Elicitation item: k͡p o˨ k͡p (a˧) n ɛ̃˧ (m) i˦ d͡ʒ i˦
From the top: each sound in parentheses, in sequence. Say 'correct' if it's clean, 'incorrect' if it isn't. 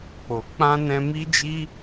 incorrect: ã˧, correct

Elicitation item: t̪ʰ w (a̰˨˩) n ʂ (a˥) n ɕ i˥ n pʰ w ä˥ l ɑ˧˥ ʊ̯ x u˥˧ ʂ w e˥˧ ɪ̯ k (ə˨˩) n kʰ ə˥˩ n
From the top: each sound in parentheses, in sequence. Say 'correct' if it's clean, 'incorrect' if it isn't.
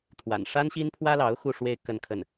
correct, correct, incorrect: ə˥˧

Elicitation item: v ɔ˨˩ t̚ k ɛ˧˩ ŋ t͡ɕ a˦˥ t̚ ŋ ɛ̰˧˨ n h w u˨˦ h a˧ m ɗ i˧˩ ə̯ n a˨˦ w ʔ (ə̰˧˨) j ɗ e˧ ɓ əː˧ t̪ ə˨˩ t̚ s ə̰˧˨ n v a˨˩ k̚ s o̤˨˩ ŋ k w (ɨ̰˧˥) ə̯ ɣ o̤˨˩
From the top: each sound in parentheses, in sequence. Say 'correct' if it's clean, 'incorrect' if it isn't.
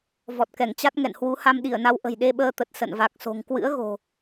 incorrect: ə̤˨˩, correct

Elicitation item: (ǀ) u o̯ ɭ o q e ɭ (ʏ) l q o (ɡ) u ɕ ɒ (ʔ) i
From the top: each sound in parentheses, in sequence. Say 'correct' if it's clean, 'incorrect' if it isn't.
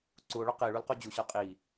correct, incorrect: u, incorrect: d͡ʑ, incorrect: qʼ

